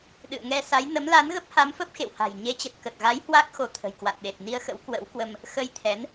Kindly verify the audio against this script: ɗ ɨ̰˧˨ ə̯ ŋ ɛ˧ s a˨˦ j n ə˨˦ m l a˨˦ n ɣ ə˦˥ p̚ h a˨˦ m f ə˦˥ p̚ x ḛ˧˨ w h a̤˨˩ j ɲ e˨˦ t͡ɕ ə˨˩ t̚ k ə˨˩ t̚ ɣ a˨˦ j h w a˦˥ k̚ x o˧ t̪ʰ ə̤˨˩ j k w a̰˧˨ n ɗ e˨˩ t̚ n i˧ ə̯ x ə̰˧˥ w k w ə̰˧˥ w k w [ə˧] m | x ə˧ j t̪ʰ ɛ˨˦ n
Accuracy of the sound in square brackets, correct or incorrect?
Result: correct